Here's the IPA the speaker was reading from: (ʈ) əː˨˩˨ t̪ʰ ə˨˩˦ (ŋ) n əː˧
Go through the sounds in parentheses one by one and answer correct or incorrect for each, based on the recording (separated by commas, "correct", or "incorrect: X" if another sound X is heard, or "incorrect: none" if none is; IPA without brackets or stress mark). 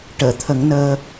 correct, correct